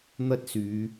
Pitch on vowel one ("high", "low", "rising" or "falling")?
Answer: high